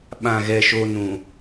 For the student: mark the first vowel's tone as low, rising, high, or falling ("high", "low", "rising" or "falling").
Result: low